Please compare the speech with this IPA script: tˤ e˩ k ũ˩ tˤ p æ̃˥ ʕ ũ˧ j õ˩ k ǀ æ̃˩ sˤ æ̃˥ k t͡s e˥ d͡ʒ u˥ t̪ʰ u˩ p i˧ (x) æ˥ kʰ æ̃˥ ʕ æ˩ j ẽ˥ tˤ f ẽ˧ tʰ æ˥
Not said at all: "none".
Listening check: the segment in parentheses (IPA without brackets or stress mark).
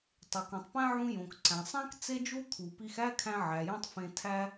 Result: x